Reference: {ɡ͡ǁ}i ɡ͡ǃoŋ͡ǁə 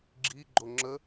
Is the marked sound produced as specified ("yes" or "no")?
yes